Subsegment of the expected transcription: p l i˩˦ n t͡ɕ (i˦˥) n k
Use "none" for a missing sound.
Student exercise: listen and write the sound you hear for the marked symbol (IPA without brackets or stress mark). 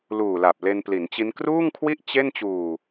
i˦˥